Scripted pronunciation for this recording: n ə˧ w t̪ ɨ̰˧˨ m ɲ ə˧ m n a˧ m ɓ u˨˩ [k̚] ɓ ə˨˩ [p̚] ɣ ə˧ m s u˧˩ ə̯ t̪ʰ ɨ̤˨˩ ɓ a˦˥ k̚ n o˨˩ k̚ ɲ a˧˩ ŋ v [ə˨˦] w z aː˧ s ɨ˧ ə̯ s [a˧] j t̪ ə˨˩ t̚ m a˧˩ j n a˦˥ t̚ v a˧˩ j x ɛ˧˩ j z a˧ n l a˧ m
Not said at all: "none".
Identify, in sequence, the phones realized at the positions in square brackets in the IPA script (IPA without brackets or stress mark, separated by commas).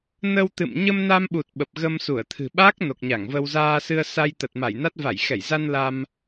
t̚, p̚, ə˧, a˧